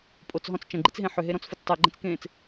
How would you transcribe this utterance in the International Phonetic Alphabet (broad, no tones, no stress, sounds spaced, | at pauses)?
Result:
pʼ o t͡s ɦ ɔ̃ t͡s t͡ʃ ɐ̃ ɡ͡ǃ i t͡s ɦ ẽ ħ ʏ ɦ e ɾ ɔ̃ t͡s f ʏ t͡s tˤ e ɡ͡ǃ ẽ t͡s k ẽː t͡s